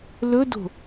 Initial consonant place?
alveolar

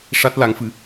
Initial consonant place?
retroflex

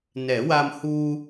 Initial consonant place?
alveolar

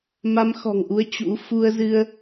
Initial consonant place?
labial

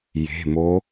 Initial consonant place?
palatal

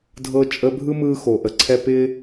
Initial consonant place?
alveolar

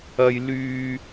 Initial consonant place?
palatal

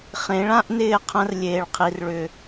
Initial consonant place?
uvular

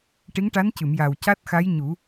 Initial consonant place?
retroflex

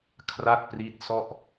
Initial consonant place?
velar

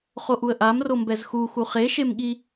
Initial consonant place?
uvular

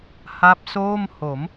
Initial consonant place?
glottal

